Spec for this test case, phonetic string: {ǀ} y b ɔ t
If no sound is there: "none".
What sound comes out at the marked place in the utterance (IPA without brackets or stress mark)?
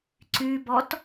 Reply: ǀ